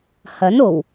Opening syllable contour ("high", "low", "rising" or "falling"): rising